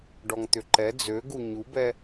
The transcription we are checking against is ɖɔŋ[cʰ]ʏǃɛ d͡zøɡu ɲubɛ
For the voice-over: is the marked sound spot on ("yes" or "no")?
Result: no